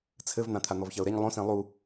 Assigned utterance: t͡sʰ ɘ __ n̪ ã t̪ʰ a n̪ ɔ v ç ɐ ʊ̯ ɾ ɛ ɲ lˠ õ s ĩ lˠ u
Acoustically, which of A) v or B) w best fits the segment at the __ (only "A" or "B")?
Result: A